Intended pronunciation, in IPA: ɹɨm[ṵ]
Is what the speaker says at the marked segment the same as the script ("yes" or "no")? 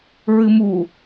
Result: no